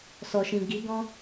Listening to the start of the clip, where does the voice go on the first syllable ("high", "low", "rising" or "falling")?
low